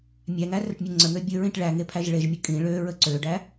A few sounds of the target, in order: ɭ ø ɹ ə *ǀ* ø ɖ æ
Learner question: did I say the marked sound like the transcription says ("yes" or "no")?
yes